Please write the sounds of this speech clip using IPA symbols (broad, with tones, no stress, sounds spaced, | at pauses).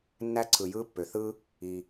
nː æ˥ ǀʰ ɯ˩ j ɯː˥ pː ø˩ θ ɯː˥ | i˩